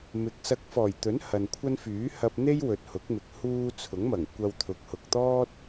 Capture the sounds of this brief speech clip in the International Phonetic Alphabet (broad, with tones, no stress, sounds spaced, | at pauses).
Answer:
m ɪ˨˥ k̚ s ɐ˧ k̚ f ɔː˨˩ j t̪ ɵ˨˥ n h ɐ˨ n kʷʰ ɐ˥ n f yː˨˥ h ɐ˧ p̚ n̪ e˥ j w ɵ˨ t̚ h ʊ˨˥ k̚ m ɪ˨ k̚ h uː˧ t͡sʰ ʊ˨˥ ŋ m ɐ˨˩ ŋ kʷ ɐ˧ w t̪ʰ ʊ˨˥ k̚ h ʊ˨ k̚ t̪ ɔː˥ t̚